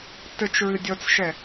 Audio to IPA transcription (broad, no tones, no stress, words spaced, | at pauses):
tɘt͡ʃɹɨ dʲɔt͡sʃɛ